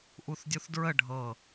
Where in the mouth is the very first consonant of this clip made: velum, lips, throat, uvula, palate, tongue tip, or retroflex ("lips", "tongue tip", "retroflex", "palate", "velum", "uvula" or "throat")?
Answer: throat